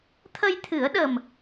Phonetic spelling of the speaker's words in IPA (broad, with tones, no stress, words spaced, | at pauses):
t̪ʰə˧jt̪ʰɨ˨˩˦ə̯ɗə˨˩m